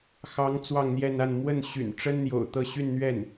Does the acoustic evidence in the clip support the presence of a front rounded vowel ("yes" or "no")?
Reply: yes